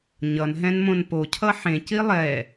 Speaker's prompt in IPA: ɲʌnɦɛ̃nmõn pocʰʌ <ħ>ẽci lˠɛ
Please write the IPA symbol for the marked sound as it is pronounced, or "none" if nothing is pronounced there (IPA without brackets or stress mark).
ħ